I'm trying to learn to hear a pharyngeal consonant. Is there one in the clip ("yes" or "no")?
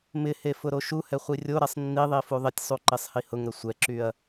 no